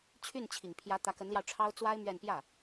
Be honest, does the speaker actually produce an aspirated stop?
yes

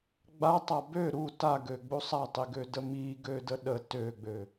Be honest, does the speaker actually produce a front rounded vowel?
yes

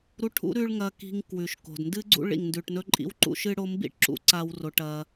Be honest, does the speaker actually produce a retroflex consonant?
yes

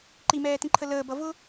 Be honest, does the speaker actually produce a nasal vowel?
yes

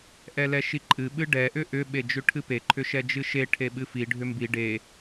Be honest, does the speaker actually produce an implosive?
yes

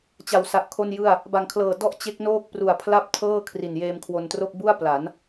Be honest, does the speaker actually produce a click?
no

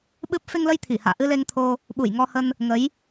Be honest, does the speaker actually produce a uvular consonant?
no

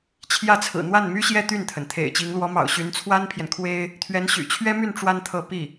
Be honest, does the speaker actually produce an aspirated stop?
yes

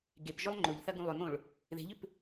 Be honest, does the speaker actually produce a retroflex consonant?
yes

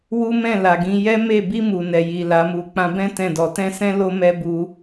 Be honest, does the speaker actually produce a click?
no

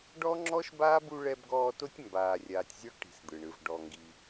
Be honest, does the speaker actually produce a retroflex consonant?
yes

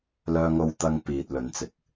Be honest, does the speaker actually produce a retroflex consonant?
no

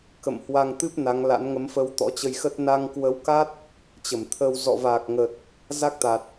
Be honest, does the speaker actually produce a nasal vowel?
no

